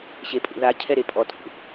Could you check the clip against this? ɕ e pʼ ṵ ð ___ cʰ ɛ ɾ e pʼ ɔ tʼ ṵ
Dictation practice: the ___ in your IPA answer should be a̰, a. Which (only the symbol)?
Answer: a